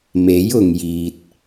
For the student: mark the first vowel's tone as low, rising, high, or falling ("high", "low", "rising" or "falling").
rising